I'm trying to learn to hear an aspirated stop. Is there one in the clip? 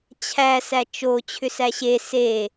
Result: yes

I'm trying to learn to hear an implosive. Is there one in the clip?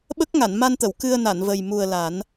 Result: yes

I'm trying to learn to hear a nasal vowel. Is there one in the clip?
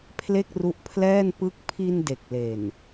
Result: no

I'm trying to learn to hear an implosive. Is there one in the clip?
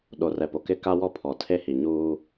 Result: yes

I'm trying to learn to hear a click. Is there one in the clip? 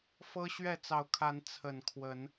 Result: no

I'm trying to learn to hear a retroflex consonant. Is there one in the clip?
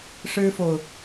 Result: yes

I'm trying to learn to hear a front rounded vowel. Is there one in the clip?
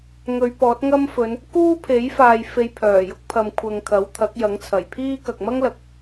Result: yes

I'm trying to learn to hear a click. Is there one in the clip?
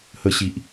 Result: no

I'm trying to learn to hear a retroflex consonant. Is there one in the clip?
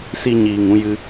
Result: no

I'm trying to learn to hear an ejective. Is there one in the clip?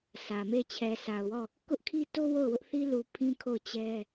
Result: no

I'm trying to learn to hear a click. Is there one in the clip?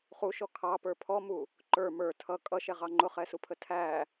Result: yes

